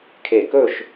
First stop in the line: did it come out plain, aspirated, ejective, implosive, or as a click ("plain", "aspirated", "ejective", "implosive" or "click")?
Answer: aspirated